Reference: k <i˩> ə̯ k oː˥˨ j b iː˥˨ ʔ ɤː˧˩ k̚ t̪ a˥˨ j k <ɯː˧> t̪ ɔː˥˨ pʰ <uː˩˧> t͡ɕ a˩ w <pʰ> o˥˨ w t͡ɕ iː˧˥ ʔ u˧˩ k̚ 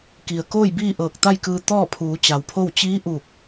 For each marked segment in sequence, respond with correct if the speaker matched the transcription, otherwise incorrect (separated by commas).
correct, correct, correct, correct